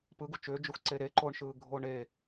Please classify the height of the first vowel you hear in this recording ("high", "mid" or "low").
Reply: high